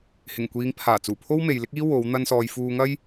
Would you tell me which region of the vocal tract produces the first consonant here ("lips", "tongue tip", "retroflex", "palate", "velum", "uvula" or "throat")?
throat